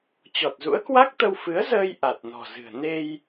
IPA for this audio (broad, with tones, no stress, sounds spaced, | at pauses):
t͡ɕ ɔ˨˩ t̚ z ṵ˧˥ ə̯ k w a˦˥ k̚ t̪ ə˧ w f ɨ˨˦ ə̯ z əː˧ j ʔ a˨˩ t̚ n ɔ̤˨˩ z ɨ̤˨˩ ə̯ n e˧ j